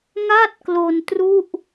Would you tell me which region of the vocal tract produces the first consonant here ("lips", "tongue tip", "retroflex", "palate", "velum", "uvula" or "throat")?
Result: velum